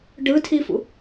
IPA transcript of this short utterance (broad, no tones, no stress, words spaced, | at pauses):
ɖɯtʰifṵ